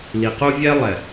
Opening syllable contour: low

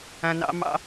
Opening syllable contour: low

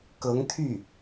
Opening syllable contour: rising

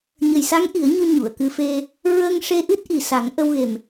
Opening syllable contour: low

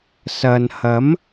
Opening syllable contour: low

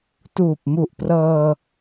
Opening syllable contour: low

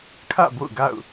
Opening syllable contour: falling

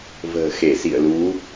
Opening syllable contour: low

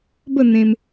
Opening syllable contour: falling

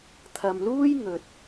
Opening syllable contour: low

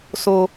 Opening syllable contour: high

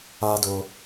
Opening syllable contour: high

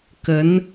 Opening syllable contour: rising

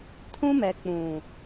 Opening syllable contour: high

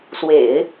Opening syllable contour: low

